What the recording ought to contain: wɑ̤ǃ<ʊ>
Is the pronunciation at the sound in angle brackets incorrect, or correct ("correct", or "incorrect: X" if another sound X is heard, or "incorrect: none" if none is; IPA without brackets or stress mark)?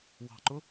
correct